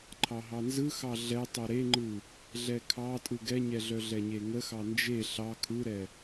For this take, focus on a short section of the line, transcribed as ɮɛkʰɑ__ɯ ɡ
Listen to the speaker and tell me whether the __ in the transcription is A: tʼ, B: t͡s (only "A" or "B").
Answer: A